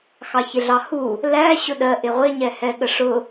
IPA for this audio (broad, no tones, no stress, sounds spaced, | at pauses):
x ɑ ç ɪ ɮ ɑ h u | l æ ɕ ʊ ɗ ɜ ʔ ɪ ʁʷ ɪ ɲ ɛ h ɛ ɠ ə ʂ ʊ